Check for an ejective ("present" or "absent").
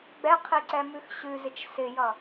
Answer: absent